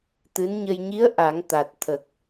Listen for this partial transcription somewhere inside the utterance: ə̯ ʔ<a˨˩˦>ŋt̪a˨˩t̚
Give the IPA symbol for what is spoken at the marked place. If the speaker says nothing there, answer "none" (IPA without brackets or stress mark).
a˨˩˦